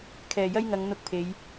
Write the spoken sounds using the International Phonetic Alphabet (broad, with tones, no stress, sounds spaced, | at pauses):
kʰ ɛː˨˩ j ɐ˥ j ŋ ɐ˨˧ ŋ n̪ ʊ˧ k̚ pʰ e˨˧ j